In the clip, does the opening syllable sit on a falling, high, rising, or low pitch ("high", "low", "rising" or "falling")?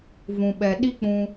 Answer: low